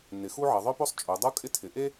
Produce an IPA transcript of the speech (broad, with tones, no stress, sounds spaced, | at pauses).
n ɪ˩˧ x u˥ ʕ ʌ˩˧ ðˤ œ˥ p o˥ sˤ t͡ʃʼ o˩˧ dˤ u˥ kʼ ɪ˥ tʰ ɪ˩˧ ʔ e˥